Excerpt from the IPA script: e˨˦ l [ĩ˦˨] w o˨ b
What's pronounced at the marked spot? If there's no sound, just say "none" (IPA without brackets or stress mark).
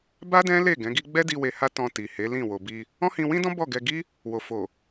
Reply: ĩ˦˨